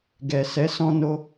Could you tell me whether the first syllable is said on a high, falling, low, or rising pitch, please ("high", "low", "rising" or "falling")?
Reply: low